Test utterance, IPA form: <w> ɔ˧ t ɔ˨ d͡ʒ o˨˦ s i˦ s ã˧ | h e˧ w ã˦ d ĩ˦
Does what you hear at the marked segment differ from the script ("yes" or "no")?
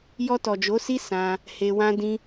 yes